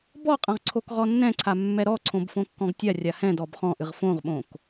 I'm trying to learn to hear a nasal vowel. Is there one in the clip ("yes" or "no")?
yes